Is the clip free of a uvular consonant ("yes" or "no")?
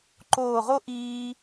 no